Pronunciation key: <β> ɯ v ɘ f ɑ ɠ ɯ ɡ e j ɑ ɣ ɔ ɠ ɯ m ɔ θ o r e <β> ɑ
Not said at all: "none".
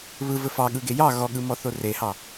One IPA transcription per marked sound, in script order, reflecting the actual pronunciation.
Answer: β, h

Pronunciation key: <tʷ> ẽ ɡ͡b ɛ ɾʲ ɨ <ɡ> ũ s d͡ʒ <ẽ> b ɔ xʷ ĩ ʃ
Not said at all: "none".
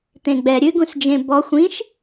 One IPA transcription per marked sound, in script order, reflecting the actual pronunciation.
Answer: t̪, ɡ, ẽ

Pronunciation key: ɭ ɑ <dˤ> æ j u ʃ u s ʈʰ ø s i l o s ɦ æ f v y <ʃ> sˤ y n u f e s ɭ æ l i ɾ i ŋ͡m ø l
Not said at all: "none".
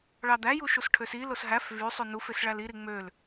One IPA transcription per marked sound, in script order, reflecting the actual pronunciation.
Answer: d̪, none

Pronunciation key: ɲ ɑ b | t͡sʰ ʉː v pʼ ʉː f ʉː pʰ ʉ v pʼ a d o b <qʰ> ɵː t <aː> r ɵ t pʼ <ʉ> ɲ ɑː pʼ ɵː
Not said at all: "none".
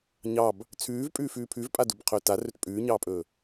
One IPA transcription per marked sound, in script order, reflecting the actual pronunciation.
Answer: qʰ, a, ʉː

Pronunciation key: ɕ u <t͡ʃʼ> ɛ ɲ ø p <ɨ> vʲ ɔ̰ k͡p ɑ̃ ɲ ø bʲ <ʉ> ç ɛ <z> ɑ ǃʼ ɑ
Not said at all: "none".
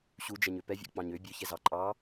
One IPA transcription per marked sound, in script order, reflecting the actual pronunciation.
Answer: d͡ʒ, ɛ, ø, z

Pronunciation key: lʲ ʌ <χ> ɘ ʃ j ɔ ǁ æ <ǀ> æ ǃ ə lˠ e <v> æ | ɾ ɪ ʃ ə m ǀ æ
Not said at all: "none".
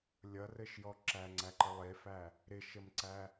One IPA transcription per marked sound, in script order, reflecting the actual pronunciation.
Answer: r, ŋ͡ǀ, f

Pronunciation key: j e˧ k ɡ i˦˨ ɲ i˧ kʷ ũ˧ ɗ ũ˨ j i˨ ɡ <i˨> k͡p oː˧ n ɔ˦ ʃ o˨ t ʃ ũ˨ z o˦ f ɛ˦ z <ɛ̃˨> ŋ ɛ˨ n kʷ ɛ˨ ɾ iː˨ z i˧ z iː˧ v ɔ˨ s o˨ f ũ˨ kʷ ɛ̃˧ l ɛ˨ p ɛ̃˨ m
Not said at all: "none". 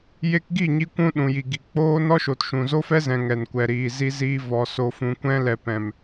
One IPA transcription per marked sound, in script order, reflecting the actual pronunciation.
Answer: i˨, ɛ̃˨

